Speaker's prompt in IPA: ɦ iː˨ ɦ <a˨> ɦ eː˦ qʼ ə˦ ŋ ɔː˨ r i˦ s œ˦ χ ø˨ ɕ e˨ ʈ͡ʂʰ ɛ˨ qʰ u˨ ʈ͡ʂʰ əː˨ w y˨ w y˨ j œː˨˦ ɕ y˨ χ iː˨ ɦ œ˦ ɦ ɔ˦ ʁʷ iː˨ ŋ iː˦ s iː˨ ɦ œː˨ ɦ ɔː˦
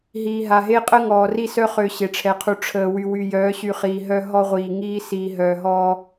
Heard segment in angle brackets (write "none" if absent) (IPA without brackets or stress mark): a˨